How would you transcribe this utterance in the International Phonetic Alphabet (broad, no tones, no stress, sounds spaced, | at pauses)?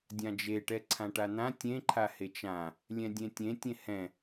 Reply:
dʲ ã d͡ʒ e ʈ ɛ ǀʰ ã ʈ a n̪ ã tʲ ẽ ǃʰ a h e t͡ʃ ã | lʲ ɛ̃ dʲ ẽ tʲ ẽ tʲ ẽ h ɛ̃